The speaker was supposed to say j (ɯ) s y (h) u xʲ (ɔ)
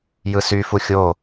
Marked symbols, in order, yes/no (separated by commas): yes, no, no